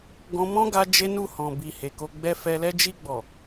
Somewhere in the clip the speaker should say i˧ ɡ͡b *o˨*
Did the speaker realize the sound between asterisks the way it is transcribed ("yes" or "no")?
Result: no